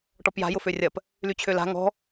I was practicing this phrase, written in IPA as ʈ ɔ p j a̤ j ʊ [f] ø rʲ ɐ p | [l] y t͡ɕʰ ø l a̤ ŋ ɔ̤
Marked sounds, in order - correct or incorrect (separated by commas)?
correct, correct